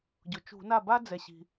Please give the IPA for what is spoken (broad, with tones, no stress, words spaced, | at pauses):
ɟʊ˩t͡ʃṳ˧˩˧na˥˩ ba˥d͡zɛ˩ɕi̤˩